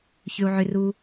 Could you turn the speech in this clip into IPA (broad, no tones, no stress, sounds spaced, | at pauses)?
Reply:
ç ʏ u̯ ʕ ʏ r u